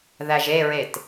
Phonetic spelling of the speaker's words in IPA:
ð æ ʒ e ɹ e t

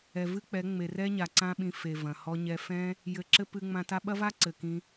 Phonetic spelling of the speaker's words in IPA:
ɛ˨ v ɨ˦ k͡p ɛ˨˦ ŋ͡m e˨ r ɛ˦ ɲ a˨ ǀ ã˦ ɓ ĩ˧ f e˨ v ɐ̃˨ h ɔ˦ ɲ ɛ˧ f ɛ̃˦ | j ɘ˧ ǁ ɘ˦ p ɨ˧ ŋ͡m ã˧ t a˦ ɓ ɐ˦ v a˦ ǀ ɘ˨ k ĩ˦

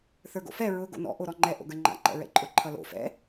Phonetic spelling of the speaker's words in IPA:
θ ə˞ ɡ o̰ f ɛ ɹ ʊ ɡ o̰ n ɔ̰ ʔ o ɾ ɔ ŋ͡ǃ ɛ ʔ o̰ ɡ ə˞ ŋ͡ǃ a̰ ǃ ɛ̰ ɹ ɛ̰ ǃʼ ʊ ǃʰ ʌ l o̰ f ɛ̰

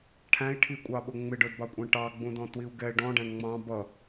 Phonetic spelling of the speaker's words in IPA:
ʈʰ æ̃ i̯ ʈʰ i kʷʼ ɑ ɓ ʊ ŋ͡m ɪ ɖ ə˞ d b ɑ kʷʼ ɛ̃ ʈ ɑ ɡ͡b ũ d ɔ̃ t w i u̯ ɡ ɛ ɖ ɔ̃ ɖ æ̃ ɳ ŋ͡m ɑ̃ b ʌ

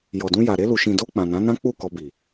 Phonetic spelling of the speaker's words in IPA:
j ɔ˨ d ũ˧ j a˨ ɾ e˧ l u˨ ʃ ĩ˨ d o˧ k͡p ã˨ n ã˨˦ n ã˦ k͡p u˦˨ k ɔ˧ b i˨

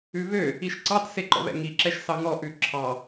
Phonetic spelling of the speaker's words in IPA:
ʉ β ø | i ʃ ǀ ɑ t s e ǃ ɔ̰ β ɛ̰ ŋ i ǁ ɛ ʃ s ɑ ŋ ɔ ʔ ʉ ǁʰ ɑ

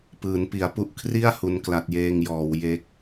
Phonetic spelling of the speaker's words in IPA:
p ɯː˩˦ n p i˩˦ a̯ p u˥˩ ʔ kʰ r i˥˩ a̯ h u˦˥ n k l a˦˥ t̚ j eː˥˩ ŋ j ɔː˩˦ w j e˦˥ k̚

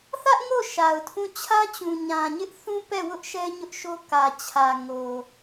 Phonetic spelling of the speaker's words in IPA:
θ ä˦ ʔ ŋ o˦˨ ʃ a˨ ʊ̯ tʰ ũ˦˨ t͡ɕʰ ä˦ t͡ɕ ũ˨ ɲ ã˨ ɲ ɪ˦ ʔ θ ũ˦ p ɛ˦˨ w ʊ˦ ʔ ʃ ɛ˦ ɲ ʊ˦ ʔ ʃ o˦ k ä˨ t͡ɕʰ ä˨ ŋ o˨

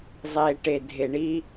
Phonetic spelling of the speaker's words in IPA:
zˤ e˨ ʈ e˨ dʱ e˨ ɳ i˦

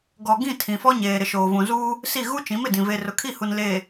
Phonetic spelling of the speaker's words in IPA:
ɡ ɔ˨ ɡ ĩ˦˨ tʰ ĩ˨ f ɔ˦ ɲ eː˨ ɾ ɪ˨ ʃ oː˨ v ũ˨ z uː˦ | s i˦˨ ɣ u˦ t͡ʃ ĩ˨˦ m ɪ˨ d ĩ˨ v e˨ r ʊ˨ kʰ i˦˨ h u˨ n l eː˨

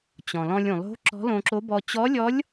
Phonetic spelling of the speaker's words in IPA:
t͡ɕ ɔ̃˩ l ɔ̃˧ lʲ ũ˩ lˠ o̤˧˥ ǁ ɔ̤˧˥ l õ˧ ǁ o˧˥ b ɔ˧ t͡ɕ ɔ˧˥ lʲ ɔ˧˥ lʲ

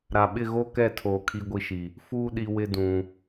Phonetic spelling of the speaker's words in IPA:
ɾ a˨ ɓ ɪ˦˨ ɣ o˦ k ɛ˦˨ tʰ oː˨ kʰ i˦ ɡʷ i˦ ʃ i˨ | f uː˦ ɗ i˨ w ɪ˦ d ũ˨

